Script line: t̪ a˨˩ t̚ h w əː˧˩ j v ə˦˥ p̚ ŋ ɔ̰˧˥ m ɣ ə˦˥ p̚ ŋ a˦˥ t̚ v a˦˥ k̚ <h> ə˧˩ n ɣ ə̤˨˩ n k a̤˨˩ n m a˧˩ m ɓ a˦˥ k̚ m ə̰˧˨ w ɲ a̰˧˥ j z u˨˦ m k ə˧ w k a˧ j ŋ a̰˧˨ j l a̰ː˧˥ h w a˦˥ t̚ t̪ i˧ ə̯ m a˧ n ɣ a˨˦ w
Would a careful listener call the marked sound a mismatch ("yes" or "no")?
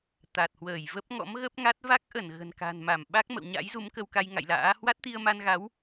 yes